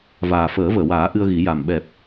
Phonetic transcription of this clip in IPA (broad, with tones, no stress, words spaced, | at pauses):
vaː˨˩fəː˨˩˦vəː˨˩˨waː˨˩˦ ʔɨ˧ə̯ɣi˨˩˦ ja˨˩m ɓɛ˨˩p̚